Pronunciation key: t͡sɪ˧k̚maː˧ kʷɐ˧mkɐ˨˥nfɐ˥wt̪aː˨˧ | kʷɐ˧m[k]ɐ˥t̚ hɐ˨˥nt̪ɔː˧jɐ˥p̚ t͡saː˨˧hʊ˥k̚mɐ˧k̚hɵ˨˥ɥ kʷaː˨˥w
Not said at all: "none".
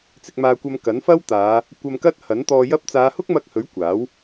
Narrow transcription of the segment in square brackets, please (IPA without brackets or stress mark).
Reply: k